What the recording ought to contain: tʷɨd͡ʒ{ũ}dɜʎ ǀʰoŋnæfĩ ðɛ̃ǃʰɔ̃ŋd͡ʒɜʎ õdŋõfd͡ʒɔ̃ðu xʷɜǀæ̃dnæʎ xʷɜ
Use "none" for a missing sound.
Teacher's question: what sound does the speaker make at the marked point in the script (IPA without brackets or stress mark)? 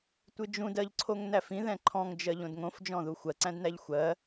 ũ